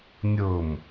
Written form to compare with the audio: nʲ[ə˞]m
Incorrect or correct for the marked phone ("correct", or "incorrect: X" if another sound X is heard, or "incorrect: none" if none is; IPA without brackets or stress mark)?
incorrect: ɤ